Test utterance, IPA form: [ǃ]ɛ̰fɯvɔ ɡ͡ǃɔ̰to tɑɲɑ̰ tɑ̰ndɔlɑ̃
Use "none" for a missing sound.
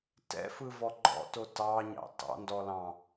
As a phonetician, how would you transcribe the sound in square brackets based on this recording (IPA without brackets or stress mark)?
t